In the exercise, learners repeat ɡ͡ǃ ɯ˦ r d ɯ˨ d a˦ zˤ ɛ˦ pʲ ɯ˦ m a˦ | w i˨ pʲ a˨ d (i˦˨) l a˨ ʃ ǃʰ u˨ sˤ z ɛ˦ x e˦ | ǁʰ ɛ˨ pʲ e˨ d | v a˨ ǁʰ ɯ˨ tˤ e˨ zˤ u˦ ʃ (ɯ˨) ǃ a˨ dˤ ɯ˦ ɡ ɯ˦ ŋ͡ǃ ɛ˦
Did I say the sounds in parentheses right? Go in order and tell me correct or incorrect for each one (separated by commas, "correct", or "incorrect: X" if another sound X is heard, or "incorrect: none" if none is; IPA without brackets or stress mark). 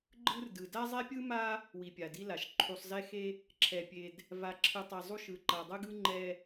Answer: incorrect: i˦, correct